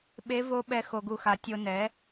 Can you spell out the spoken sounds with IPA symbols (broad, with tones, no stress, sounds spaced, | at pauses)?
ɓ e˧˥ v o˧˥ ɓ ɛ˧ x o˧ ɡ u˧ x a˩˥ tʲ o˧ n ɛ˩˥